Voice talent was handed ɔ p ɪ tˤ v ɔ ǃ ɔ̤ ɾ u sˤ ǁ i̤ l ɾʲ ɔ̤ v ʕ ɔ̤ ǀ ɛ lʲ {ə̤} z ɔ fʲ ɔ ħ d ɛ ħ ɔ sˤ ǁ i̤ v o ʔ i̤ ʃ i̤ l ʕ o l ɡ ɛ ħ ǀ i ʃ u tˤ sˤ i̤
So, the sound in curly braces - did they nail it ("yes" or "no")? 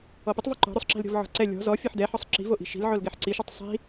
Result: no